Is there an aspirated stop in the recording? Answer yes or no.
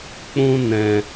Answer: no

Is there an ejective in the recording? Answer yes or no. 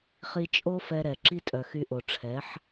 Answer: yes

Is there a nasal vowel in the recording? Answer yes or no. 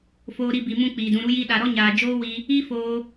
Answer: yes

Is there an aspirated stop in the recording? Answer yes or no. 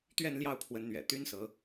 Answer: yes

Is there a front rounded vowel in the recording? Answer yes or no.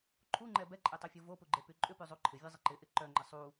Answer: yes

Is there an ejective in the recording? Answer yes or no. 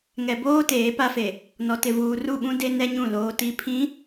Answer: no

